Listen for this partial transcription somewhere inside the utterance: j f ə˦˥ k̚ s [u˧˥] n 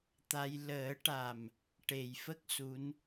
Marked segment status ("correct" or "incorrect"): correct